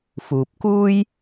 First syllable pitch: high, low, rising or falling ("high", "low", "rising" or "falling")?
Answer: low